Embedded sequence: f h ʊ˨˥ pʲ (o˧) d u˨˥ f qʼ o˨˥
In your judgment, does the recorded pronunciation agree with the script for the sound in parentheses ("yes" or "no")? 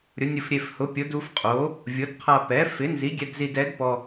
no